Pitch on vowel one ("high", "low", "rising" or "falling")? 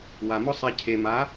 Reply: low